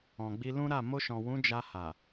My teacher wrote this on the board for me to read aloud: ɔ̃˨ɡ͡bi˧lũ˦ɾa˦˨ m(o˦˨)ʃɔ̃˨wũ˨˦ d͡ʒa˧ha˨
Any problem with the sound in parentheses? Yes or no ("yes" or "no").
yes